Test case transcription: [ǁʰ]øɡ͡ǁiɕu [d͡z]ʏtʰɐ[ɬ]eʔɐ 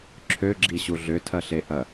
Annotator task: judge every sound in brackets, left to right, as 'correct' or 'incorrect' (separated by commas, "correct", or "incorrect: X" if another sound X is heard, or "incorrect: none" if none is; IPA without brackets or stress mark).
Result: correct, incorrect: ɮ, correct